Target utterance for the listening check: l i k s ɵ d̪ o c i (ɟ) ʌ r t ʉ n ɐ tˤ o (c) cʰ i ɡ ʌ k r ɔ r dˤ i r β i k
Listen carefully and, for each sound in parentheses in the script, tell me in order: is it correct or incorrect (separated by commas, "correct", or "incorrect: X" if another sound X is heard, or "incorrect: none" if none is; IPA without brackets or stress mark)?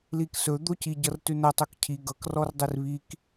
correct, incorrect: k